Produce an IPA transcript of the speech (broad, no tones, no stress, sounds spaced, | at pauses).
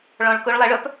ɭ ɔ̃ ɭ k ɵ ɭ lˠ æ ɭ œ p